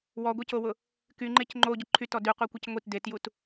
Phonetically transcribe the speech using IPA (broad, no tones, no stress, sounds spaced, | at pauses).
w ɔ ɡʷ e c o w ʊ | k y ŋ͡ǃ e c ŋ͡ǃ o ɟ ʊ ǃʰ y t ɔ d y qʷ e kʷ e c ŋʷ i t d e t j u t